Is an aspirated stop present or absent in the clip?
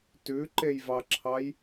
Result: present